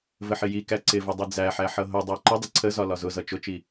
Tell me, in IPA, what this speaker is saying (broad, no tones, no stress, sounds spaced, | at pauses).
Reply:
v ə ħ ɪ j i k æ ǀ ɪ v ʊ dˤ i d͡z æ ħ æ ħ ʌ ɦ ʊ dˤ æ ǃ ə dˤ ə ǀʰ ə z ɒ l ɒ z ʊ z ʌ t͡ʃ ʊ t͡ʃ i